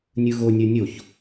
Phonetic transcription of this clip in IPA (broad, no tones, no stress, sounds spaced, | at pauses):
nʲ ɯ ɣ o nʲ ə˞ nʲ o ç